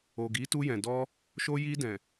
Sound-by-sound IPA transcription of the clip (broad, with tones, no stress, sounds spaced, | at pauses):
o˨ ɡ i˨˦ t u˧ j ɛ̃˨ d ɔ˧ | ʃ o˧ j i˧ d ɛ̃˨